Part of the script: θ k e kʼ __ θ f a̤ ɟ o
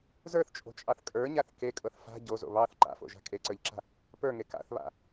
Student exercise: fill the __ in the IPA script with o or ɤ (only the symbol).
ɤ